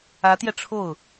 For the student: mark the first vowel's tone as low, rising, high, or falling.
rising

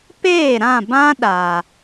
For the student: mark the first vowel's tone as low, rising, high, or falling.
falling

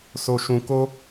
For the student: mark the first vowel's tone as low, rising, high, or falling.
low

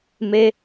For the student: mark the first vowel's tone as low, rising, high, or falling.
high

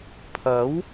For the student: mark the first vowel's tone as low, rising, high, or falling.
rising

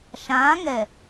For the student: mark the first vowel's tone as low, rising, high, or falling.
rising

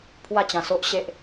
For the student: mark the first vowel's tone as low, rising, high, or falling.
falling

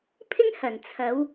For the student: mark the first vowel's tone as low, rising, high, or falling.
high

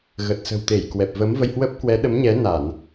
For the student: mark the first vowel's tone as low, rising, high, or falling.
low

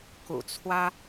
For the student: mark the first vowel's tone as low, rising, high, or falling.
low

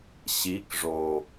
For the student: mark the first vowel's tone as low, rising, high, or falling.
rising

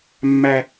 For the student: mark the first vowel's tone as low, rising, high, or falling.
high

